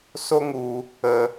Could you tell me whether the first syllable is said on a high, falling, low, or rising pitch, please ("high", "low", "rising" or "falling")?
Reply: high